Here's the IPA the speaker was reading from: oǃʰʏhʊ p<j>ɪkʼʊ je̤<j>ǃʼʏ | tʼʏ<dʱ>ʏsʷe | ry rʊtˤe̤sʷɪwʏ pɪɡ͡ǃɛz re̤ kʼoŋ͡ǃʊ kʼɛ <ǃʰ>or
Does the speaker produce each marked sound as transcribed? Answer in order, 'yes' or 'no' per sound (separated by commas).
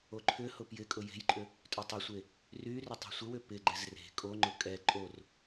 yes, yes, no, no